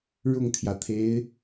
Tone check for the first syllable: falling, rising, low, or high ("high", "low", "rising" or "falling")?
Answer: falling